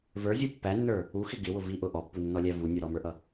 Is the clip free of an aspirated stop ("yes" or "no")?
yes